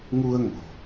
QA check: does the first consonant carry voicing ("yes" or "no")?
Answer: yes